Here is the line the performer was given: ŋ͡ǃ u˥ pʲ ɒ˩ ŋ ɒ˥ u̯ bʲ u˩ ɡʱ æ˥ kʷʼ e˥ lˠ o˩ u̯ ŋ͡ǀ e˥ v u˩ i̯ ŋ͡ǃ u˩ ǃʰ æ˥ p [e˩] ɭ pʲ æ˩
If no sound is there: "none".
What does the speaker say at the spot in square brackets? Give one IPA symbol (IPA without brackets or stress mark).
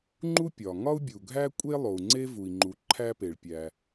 e˩